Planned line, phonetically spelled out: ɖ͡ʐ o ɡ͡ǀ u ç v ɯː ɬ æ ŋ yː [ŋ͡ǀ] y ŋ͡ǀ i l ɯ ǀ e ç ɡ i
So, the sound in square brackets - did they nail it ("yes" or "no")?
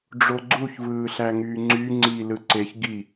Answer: yes